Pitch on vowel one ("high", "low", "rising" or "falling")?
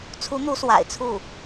rising